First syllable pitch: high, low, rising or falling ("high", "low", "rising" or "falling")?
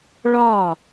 falling